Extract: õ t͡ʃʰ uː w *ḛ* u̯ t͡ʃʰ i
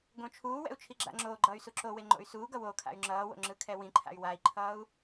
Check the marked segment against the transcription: incorrect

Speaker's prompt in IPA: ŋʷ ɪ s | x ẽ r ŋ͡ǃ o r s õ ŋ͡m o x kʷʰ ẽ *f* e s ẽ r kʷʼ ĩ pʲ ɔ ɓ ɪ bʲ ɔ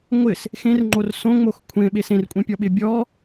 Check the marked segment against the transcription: incorrect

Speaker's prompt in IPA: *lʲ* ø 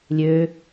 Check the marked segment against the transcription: correct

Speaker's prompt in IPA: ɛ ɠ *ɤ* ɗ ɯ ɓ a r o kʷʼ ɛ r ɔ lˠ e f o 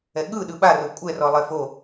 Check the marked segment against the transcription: incorrect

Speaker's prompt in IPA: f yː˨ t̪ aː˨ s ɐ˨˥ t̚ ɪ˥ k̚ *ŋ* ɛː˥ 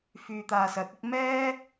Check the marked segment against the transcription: incorrect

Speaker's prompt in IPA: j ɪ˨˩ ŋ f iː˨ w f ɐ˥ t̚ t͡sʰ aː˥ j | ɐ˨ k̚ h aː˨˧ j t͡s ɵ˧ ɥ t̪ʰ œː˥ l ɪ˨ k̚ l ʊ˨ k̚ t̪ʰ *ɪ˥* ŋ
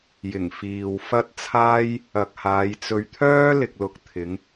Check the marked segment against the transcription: incorrect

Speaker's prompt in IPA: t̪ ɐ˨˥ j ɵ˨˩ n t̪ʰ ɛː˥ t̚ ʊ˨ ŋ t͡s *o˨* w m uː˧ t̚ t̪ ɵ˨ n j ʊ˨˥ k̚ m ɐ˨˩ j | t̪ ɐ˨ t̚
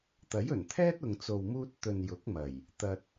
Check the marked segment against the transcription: correct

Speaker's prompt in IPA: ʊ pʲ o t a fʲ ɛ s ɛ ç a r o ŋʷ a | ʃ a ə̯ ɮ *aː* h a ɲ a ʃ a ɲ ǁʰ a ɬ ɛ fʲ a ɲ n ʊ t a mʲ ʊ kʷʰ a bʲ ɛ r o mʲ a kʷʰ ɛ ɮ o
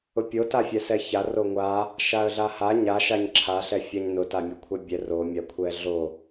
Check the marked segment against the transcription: incorrect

